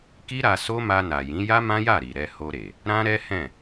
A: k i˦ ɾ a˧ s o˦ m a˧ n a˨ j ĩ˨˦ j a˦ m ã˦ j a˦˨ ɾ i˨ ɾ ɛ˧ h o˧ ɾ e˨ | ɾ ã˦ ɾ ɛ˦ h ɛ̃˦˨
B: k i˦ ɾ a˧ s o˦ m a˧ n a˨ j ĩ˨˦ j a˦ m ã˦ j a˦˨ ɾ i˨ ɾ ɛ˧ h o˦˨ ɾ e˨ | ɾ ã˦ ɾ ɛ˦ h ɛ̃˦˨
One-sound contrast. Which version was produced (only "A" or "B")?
A